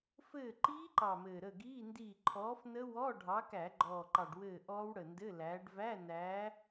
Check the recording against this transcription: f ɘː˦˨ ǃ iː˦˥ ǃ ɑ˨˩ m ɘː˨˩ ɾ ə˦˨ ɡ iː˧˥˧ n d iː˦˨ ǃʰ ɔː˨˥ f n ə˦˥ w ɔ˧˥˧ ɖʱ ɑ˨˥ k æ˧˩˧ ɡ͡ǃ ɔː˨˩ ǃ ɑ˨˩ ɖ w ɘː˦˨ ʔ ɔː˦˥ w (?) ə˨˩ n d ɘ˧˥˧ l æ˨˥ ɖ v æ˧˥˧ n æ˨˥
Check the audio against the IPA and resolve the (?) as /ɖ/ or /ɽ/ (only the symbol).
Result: ɽ